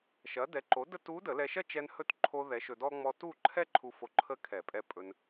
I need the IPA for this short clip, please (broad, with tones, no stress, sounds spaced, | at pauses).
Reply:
ʃ ɐ˩˥ d ɛ˩˥ ǃ o˩˥ d ə˧ t u˧˥ d ə˨˩˦ l ɛ˧ ʃ ɐ˥ t͡ʃ ɛ˧ n h ɵ˧˥ t ǃʰ o˧ ð ɛ˩˥ ʃ ɵ˧ d ɔ˥ ŋ͡m ɔ˧ t u˥˨ ǃʰ ɛ˥ ǃʰ u˧ f o˧ ǃʰ ə˧˥ kʰ ɛ˨˩˦ pʼ ɛ˧ pʼ ɵ˧ n